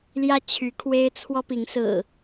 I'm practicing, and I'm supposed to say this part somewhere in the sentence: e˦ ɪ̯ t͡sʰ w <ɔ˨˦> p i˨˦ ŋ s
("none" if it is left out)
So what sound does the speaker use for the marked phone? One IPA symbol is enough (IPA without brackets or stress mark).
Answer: ɔ˦